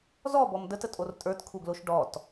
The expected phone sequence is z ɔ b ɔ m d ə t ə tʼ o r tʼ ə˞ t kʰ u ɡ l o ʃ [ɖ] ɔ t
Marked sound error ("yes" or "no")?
no